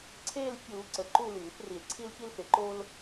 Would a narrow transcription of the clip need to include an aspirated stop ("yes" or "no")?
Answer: yes